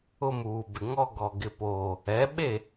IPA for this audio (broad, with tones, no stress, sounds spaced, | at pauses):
ʊ˦ m uː˨ b ɪ˨ ŋ ɔ˦ ɡ ɔ˨ ɡ ɪ˨ p oː˨ | ɛ˨˦ ɓ e˦˨